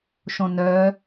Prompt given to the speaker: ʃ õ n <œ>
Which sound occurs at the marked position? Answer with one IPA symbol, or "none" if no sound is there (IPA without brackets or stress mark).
œ